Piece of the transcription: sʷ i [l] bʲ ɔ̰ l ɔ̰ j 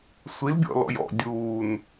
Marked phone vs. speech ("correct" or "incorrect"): correct